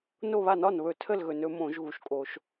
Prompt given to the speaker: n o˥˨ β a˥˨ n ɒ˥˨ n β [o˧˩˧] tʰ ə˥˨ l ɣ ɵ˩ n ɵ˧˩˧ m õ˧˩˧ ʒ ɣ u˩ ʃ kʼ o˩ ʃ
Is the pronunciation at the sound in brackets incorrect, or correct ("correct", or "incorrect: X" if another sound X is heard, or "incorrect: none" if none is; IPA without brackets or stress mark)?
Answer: incorrect: ɵ˧˩˧